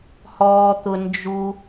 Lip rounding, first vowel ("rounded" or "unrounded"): rounded